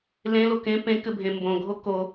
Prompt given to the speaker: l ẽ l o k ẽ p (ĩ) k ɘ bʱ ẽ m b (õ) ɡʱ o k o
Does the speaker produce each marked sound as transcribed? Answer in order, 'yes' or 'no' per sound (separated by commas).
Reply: no, yes